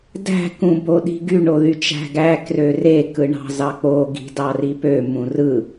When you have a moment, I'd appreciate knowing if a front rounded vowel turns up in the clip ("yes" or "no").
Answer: yes